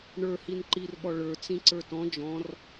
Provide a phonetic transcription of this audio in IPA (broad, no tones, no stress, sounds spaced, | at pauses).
ɳ ə˞ h i n ǃ i r ɓ ɔ ɭ ə˞ t͡s ĩ ǀ ə˞ t ɔ̃ d͡ʒ ɔ̃ r